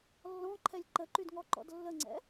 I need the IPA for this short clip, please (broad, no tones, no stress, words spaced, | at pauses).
lːɔ̃ǃʰɛlʲ ǃəǃydŋɔǃɔ̰d lːəŋ͡ǀɛ̰